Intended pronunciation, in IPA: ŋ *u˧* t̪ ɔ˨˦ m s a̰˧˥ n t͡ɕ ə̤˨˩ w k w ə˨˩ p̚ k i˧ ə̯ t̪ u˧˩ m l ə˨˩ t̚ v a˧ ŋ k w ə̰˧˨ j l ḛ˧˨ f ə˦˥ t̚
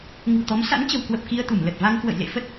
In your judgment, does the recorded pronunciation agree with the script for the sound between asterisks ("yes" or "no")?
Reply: no